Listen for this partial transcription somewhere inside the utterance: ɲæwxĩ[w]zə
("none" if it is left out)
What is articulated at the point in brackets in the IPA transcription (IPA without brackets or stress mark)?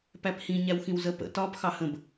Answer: w